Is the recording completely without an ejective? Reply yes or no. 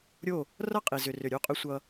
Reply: no